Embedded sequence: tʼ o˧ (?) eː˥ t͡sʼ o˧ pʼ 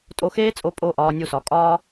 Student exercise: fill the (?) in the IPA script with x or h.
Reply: x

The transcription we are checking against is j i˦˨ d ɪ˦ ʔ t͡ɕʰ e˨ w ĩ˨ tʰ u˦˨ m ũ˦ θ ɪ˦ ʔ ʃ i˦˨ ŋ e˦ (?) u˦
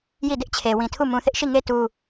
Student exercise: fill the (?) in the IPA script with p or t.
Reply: t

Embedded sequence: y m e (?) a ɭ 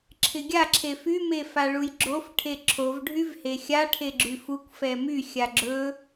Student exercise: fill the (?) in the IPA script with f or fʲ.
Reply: f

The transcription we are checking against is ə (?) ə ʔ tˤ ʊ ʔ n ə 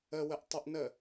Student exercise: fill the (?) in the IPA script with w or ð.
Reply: w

